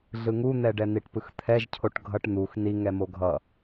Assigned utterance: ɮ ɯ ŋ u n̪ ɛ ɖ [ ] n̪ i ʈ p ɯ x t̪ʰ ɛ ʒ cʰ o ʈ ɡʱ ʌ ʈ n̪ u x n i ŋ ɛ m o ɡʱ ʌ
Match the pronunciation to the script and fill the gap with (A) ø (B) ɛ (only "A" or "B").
B